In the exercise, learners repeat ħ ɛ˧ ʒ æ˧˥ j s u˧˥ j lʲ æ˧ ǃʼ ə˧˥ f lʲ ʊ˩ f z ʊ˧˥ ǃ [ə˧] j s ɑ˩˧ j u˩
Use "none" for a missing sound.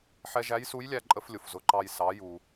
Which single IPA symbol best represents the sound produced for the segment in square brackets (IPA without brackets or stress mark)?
ɑ˧